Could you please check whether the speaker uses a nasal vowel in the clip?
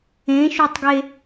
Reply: yes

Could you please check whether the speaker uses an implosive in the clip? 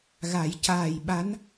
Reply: yes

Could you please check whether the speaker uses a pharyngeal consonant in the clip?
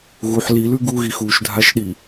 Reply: yes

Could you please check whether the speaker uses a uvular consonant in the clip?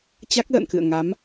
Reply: no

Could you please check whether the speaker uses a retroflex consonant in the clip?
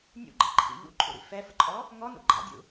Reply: no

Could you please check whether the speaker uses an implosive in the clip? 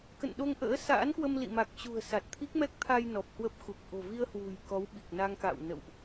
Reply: yes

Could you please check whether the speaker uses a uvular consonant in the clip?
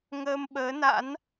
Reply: no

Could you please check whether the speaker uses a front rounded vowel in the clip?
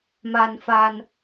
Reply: no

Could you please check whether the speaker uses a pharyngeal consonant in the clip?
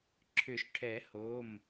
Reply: no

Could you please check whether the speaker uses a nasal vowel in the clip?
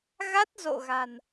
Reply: no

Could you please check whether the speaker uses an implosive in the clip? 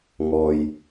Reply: no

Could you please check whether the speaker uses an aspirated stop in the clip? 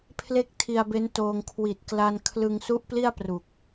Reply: yes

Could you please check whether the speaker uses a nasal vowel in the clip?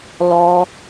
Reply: no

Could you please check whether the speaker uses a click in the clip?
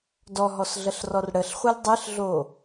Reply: no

